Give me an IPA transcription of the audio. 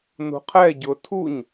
n ṳ qʰ ɛ ɟ ʊ tʰ u ɲ

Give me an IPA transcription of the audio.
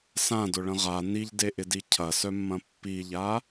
s ã d ʊ ɭ ə̃ ʁ a n i ʎ d e ʔ ɪ d i cʰ ɐ s œ mː ɐ̃ pː i ʎ a

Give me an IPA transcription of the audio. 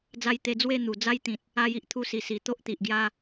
d͡z a˧ j t̪ e˧ d͡z w e˥˧ n̪ u˨˩ d͡z a˦ j t̪ ĩ˨ t̚ | a˧ j i˨ ʔ t̪ʰ u˧ s i˨˩ s i˨˩ t̪ o˦ ʔ t̪ i˨ ʔ ɡ j a˧

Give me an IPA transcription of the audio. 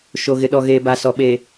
ʃ o˨ ɣ ɪ˨ ɗ ɔ˨ ɣ eː˨ b a˨ s ɔ˨ ɓ e˨

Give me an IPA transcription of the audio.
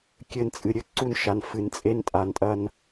kʲ ɘ˨ n t͡sʼ ɨ˨ ɾʲ ɘ˦ ǀ u˦ n ʃ a˨ n f ɨ˨ n t͡sʼ e˦ n tʼ a˨ n tʼ ɐ˦ n

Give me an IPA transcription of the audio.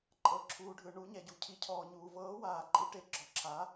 ǃʼ ɤ˨ ǁʰ uː˨ ɖʱ ɯ˨ ɳ u˨˥ ɲ ɛ˨ ɟ u˨ cʰ i˨˥ cʰ ɔː˨ ɲ uː˨ v ɤː˨˥ w aː˨ ǃʼ i˨˥ ʈ e˨ ɡ͡ǁ ɔ˨˥ ǁʰ a˨˥

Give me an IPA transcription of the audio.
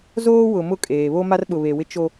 z oː˦ w ʊ˨ m ʊ˦˨ kʼ eː˨ β o˦ m a˦ r ɓ ʊ˨ β e˨ w ɪ˦ t͡ʃ o˦

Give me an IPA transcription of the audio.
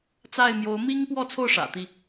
t͡s a˥˨ ɪ̯ m j o˨˦ ʊ̯ m i˦ ŋ p w ɔ˥˨ t͡sʰ o˥˨ ʊ̯ ʂ ä̰˨˩ t̪ i˥˨

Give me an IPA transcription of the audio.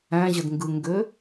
æ̃ ʑ ə d ŋ ɡ ɯ ŋ ɡ ø

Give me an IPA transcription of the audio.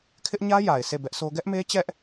kʰ ɪ˦ ʔ ɲ ä˦ j a˨ ɪ̯ sʰ e˦˨ b ɛ˦ ʔ s o˦ ɡ ɛ˦ ʔ m e˦ t͡ɕ ɛ˦ ʔ

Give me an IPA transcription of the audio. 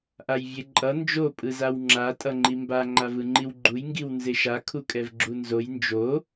ʔ a j vʲ e ǃʼ ʌ n d͡ʒ o pʼ ɯ z a w ŋ͡ǁ a tʼ ʌ ŋ͡ǃ i m b a ŋ͡ǃ a v ɯ ŋ͡ǃ i w ɡ͡ǃ u j ŋ ɡ i w n z e ʃ a kʰ u kʼ ɛ v ɡ͡ǁ u n z o j n d͡ʒ o

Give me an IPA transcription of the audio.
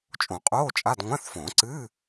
t͡ʃʼ õ˨˩˦ qʼ oː˧˥˧ t͡ʃʼ a˧˥˧ d ŋʷ ã˧˥˧ θ f õ˨˩˦ ǀ ɨː˧˥˧

